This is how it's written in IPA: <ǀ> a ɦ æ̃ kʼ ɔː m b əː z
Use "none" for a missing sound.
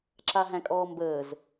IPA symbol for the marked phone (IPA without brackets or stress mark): ǁ